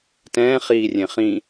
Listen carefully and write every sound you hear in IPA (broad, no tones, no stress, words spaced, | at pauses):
tɛ̃ːχiːrʲẽ χĩ